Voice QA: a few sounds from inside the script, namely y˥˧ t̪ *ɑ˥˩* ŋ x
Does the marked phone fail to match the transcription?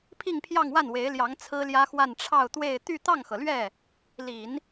no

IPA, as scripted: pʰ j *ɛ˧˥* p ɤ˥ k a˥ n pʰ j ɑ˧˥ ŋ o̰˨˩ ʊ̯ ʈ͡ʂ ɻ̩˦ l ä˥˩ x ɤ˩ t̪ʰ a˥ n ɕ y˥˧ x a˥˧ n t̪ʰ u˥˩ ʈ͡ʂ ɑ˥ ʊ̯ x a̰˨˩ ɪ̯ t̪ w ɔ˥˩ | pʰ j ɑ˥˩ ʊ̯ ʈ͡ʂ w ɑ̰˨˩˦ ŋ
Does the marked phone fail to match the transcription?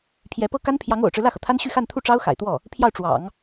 no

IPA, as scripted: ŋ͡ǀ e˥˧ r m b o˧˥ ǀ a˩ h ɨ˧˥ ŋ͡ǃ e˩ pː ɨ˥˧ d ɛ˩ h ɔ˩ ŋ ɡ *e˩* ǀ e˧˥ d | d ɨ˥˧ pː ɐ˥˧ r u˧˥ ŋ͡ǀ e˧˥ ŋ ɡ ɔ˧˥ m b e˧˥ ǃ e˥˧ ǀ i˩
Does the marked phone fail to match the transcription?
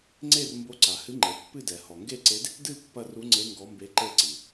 yes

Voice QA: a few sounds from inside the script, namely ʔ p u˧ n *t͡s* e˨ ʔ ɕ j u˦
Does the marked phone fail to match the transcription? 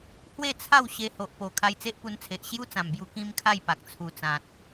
yes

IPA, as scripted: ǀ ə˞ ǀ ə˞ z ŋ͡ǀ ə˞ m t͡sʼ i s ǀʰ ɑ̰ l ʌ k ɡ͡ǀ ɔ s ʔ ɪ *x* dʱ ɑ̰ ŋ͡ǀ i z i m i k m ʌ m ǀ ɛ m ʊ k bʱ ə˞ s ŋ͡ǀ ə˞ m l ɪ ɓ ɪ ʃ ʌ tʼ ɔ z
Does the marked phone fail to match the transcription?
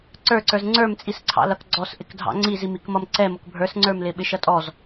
yes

